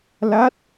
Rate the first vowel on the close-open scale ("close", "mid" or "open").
open